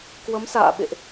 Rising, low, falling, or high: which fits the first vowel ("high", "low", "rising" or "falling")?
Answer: rising